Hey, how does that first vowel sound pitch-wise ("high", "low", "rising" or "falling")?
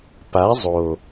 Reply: rising